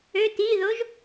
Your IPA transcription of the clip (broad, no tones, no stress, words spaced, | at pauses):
øt iðoʒ